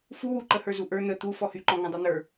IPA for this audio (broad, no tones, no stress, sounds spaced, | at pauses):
f u w u ǃ ə h ə˞ z u ʔ ə˞ n̪ ə t̪ u f ɔ h y ǃ ɔ̃ ŋ ɔ̃ dˤ y n̪ ə˞